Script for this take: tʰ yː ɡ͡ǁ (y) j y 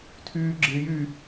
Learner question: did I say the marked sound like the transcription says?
no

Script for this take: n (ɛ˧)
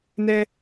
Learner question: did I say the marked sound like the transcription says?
yes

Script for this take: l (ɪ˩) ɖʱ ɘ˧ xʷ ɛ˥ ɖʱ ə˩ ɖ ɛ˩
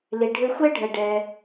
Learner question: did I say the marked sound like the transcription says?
yes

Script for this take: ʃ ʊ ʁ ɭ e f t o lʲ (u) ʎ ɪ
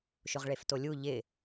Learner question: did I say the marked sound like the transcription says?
yes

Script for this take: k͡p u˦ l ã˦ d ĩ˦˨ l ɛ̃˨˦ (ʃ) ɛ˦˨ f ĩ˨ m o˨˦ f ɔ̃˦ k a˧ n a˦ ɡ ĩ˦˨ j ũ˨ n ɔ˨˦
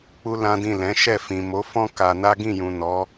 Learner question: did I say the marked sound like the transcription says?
yes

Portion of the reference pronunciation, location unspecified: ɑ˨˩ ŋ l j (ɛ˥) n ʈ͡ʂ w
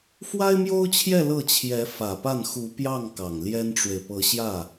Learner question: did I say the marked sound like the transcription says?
yes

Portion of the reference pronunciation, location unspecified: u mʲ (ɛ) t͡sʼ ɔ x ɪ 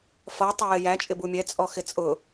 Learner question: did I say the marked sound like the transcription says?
yes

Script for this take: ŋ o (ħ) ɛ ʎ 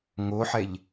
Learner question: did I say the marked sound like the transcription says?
yes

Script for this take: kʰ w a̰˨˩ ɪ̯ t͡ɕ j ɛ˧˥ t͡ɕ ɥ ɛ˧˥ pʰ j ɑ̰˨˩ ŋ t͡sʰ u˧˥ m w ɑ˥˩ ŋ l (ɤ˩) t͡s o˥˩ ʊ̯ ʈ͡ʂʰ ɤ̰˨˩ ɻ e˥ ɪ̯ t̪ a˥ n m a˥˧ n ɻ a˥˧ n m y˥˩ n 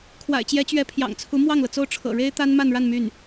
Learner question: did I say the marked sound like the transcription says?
yes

